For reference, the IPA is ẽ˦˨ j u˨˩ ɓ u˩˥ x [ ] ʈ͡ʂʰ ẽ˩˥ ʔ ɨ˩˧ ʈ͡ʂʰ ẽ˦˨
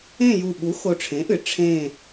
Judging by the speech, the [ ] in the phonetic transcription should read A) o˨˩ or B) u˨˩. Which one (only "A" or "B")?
A